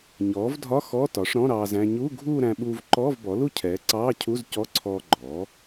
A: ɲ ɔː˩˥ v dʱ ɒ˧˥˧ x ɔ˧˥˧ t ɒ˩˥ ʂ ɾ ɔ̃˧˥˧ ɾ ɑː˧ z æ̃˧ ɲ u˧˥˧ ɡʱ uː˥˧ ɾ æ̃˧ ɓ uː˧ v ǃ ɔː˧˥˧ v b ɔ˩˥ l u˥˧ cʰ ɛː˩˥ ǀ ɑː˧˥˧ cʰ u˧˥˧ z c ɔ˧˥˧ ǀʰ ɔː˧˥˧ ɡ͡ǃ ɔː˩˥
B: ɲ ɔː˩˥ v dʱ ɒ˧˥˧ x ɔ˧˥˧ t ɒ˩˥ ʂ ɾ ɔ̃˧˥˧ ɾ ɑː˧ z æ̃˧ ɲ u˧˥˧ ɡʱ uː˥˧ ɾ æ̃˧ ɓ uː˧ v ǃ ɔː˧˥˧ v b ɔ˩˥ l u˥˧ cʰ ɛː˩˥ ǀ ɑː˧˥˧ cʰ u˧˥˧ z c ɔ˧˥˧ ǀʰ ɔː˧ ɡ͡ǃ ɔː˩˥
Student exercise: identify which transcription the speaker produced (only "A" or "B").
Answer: B